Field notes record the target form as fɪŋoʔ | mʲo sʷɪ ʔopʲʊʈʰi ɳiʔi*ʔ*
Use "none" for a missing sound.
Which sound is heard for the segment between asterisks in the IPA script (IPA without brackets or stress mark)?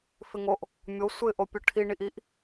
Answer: ʔ